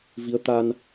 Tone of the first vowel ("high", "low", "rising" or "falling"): rising